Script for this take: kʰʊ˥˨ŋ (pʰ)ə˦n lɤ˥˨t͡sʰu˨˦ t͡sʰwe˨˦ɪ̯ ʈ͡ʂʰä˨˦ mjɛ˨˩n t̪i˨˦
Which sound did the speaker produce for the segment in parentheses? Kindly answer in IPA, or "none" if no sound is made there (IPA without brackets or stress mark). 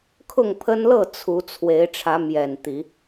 pʰ